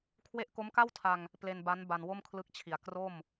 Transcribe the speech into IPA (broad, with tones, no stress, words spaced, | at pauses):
kʰwe˦˥ʔko˦˥mka˥˩wtʰa˧ŋ | ple˧nba˦˥n ba˧nwo˥˩mkʰlɯ˦˥k̚t͡ɕʰi˨˩a̯ kro˥˩m